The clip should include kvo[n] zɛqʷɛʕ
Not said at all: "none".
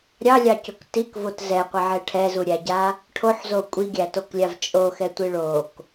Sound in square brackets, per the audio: t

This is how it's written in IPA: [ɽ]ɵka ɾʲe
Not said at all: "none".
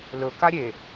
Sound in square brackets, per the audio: l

